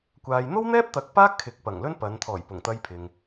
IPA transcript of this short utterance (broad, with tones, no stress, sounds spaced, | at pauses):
kʷ aː˨ j n̪ o˥ w n̪ ɛː˥ p̚ t̪ ɐ˨˥ k̚ p aː˥ kʰ ɪ˨ k̚ p ɐ˨˩ ŋ l ɵ˥ n p ɐ˨˧ n t̪ʰ ɔː˨˩ j p ʊ˨˩ ŋ t̪ ɐ˧ j pʰ ɪ˨ ŋ